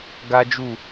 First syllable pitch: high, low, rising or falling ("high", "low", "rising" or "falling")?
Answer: high